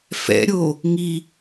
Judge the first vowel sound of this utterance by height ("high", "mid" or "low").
mid